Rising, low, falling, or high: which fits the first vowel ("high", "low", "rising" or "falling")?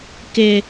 high